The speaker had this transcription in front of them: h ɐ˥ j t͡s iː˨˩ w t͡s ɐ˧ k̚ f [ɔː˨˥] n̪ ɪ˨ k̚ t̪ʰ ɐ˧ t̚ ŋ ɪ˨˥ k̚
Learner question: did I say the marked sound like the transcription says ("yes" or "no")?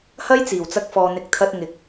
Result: no